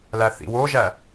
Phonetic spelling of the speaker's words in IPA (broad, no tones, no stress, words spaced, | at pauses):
læθḭwoʒæ